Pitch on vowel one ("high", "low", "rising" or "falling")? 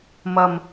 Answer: low